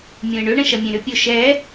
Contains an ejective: no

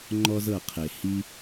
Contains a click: yes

